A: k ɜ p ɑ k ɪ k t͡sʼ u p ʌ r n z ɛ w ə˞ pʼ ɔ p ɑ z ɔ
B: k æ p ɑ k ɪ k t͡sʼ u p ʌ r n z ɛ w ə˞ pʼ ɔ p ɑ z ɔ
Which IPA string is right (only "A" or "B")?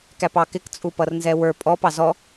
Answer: B